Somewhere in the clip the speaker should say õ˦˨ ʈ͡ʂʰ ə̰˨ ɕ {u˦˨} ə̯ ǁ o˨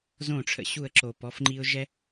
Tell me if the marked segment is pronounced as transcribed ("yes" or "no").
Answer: yes